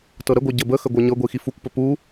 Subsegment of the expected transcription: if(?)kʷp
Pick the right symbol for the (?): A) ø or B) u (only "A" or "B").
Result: B